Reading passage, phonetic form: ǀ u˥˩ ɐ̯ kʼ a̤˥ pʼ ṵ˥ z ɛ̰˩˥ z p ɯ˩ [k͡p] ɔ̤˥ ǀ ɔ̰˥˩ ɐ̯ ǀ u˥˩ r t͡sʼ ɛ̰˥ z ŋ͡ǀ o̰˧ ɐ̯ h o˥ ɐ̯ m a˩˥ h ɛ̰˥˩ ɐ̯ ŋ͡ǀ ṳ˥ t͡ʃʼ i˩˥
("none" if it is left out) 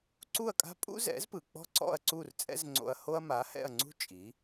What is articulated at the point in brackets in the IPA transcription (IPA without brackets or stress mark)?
k͡p